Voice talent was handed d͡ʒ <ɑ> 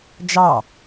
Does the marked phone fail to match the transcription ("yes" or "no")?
no